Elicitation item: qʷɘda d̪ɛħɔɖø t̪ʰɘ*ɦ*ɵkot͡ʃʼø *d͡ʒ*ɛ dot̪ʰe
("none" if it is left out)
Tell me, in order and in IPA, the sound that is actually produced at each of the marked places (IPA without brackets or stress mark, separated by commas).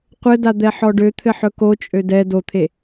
ħ, d